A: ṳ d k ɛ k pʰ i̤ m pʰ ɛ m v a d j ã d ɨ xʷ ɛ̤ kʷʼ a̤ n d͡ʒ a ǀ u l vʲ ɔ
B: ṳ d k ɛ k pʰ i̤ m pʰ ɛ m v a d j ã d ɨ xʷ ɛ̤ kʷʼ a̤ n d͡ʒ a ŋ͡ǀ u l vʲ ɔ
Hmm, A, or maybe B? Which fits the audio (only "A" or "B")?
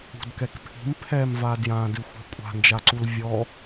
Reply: A